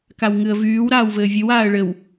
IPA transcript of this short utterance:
kawŋɨə̯vyːw ɾaːwvɘːvʲɨw aːə̯ɭɘw

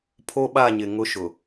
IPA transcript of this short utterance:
pʰo˦ɓa˦˨ɲɪ˨ ŋʊ˦ʃʊ˨

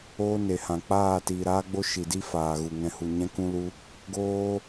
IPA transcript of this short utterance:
oː˦ne˨hã˨ k͡paː˦˨tiː˨ɾaː˦ɡ͡bo˦ ʃi˨di˦ faː˨ɣu˨ ŋɛ̃˨hu˨ɲɛ̃˧ kũ˧lu˧ | ɡoː˦

